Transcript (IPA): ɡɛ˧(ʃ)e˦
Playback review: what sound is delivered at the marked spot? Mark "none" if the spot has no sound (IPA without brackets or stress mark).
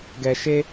ʃ